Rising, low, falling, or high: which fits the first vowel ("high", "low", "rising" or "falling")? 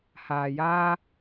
low